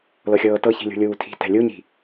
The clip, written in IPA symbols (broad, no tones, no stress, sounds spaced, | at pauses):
l ɤ xʲ ɤː t ɤ ç i̤ lʲ ṳ lʲ uː tʰ i̤ t ɛ̤ lʲ u ɲ i̤